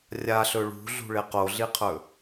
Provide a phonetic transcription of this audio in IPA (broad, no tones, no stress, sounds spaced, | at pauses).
rʲ a ɬ ɵ ɭ ṳ ɮ ṳ ɭ e q o ɮ i qʰ ɵ